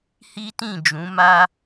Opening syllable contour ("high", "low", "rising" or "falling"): high